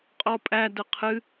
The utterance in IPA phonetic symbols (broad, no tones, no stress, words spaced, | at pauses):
qʼɔpʼæ dəqʰɨ